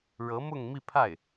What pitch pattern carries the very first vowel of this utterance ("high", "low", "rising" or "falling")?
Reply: rising